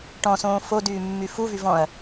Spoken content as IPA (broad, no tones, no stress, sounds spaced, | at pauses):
ʈ ɔ̃ s õː f o d yː mː y f u v y v ɔ̃ ɐ̯